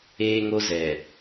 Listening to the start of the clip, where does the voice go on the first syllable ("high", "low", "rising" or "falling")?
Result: high